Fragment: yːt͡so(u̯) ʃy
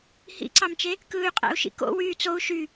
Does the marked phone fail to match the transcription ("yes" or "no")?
no